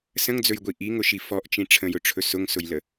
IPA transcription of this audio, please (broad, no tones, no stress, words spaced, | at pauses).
sə̃ŋd͡zɵjɡʷi ʔiŋʊʃi fɔʔt͡ʃĩ ʈ͡ʂʰə̃jʊʈ͡ʂʰɵ sʊŋsʊjlə